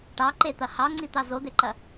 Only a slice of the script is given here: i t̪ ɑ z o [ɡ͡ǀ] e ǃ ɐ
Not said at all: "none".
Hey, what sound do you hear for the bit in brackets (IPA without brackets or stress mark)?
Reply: d̪